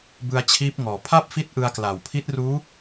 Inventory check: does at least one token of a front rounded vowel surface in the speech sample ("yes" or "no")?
no